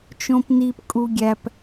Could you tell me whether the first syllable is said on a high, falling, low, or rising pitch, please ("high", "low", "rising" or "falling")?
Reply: high